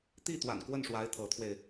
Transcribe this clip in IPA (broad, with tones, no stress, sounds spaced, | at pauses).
t̪ i˥˩ t̪ w a̰˨˩ n k w ə˥˩ n ʂ w a˧˥ ɪ̯ t̪ʰ ɤ˧˥ t̪ʰ w e˧ ɪ̯